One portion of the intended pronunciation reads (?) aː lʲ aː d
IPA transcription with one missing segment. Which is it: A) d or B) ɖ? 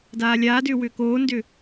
A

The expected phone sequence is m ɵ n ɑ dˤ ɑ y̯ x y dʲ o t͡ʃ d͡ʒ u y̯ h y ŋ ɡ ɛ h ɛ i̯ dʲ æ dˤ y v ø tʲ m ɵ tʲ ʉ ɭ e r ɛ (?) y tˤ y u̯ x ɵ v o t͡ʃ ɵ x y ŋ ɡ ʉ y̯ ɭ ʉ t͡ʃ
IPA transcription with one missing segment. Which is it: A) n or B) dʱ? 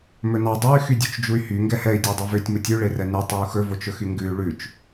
A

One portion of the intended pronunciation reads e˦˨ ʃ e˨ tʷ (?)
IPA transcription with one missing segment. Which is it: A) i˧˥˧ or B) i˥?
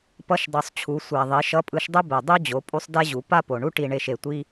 B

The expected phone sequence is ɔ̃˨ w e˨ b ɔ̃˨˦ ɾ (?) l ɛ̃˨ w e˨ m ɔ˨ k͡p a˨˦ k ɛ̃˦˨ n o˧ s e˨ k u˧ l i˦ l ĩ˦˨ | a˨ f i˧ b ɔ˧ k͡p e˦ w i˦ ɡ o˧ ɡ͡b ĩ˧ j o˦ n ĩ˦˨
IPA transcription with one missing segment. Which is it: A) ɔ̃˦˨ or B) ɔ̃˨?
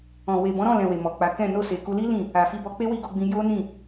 A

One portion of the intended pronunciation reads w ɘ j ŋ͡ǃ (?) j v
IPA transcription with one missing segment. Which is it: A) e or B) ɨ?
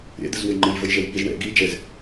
B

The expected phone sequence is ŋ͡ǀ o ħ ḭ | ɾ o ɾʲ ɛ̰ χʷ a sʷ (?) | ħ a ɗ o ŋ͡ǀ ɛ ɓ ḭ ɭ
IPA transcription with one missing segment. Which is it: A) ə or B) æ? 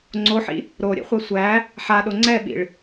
B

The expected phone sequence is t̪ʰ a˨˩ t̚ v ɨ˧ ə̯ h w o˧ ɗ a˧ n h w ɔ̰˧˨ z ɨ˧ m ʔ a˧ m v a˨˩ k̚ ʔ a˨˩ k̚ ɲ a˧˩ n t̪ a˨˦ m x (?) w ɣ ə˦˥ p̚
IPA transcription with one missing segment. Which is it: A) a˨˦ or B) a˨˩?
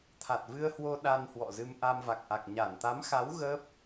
A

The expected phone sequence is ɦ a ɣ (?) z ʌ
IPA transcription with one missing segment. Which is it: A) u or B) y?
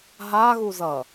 A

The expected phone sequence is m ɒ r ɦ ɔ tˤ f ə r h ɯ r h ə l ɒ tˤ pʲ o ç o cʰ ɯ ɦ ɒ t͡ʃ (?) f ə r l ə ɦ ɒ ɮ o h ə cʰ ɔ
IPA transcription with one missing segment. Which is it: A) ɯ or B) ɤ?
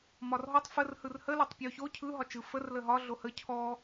A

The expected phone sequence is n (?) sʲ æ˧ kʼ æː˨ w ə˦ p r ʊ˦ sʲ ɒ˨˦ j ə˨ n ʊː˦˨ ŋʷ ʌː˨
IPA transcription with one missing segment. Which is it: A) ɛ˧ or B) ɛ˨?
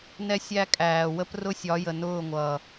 A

